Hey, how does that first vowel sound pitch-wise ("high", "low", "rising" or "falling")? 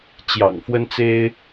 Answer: low